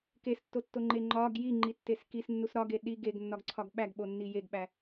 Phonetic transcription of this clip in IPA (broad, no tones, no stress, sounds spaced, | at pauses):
k e s tː o tː o ŋ͡ǃ e ŋ͡ǃ ɒ ɡ j i ŋ͡ǃ i tː e s k i s nː u s ɾ ɒ ɡ e ɗ i ɡ e ɡ nː ɒ ɡ ǀʰ ɒ ɡ ɓ æ ɡ ɓ o nː i j e ɡ ɓ æ